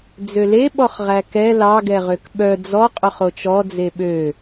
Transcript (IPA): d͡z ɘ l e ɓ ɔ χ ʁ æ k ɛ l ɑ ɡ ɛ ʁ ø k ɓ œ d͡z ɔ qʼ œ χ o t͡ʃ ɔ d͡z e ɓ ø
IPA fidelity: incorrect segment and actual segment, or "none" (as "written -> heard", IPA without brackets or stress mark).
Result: ɘ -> ø